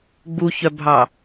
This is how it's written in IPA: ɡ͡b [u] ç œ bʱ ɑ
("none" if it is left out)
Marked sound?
u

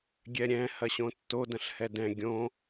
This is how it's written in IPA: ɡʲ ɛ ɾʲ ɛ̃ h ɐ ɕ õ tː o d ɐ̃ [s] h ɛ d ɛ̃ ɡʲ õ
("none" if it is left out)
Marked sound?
ɬ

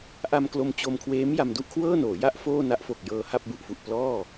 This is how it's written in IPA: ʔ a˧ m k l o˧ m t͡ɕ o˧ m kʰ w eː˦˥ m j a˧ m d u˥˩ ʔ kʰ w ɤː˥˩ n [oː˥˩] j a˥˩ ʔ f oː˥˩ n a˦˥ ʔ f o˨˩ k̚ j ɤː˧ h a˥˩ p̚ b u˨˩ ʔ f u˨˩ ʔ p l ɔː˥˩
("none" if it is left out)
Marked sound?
oː˩˦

